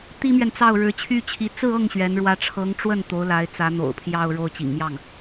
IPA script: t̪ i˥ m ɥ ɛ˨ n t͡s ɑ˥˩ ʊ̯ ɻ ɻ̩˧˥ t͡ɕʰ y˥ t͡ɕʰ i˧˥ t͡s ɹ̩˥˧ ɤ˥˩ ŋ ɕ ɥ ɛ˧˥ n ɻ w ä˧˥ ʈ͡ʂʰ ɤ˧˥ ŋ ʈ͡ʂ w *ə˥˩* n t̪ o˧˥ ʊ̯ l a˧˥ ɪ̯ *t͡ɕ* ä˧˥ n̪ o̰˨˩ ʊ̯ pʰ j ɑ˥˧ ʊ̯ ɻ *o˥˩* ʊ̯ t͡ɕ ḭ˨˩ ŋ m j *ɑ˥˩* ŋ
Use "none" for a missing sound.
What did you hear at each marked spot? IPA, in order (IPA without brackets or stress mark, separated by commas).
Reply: ə˥˩, t͡s, o˥˩, ɑ˥˩